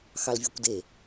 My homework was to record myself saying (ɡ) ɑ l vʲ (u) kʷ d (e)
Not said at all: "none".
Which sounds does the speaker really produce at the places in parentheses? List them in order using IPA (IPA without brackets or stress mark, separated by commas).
x, u, e